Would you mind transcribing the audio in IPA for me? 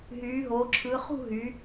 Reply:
ɦyː˩˧ɦoː˩˧ǁʰɯ˩˧ χṳ˥˧ɦy˩˧

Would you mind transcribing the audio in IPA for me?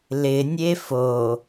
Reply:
lɪnʲe fo

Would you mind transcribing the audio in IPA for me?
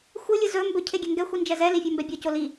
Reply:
xʷɯ lʲɯzɵ mbɵ cʰeɡʲɛŋɡɛ xʷind͡ʒɛzɛ lifʲə˞mbɛbʲo coli

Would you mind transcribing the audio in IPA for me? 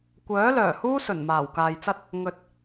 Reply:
kʷœː˨˥lœː˨˩huː˥ sɵ˨˩nmaː˨˩w kaː˨jt͡sɐ˥t̚ | ŋɵ˨t̚

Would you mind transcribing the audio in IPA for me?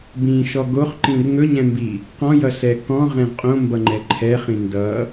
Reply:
bĩʃɔ ɡoχǃĩr ŋɵɲɛ̃mbi | qɔ̃jʌɬɛ kɔ̃ʁɛ̃ʁ qʼõmbʌŋ͡ǃɛ ǃʰɛχĩ ndʌ

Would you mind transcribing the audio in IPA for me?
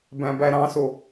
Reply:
bæ̃bæɾɑ̃so

